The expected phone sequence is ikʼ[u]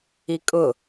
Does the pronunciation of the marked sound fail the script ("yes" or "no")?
yes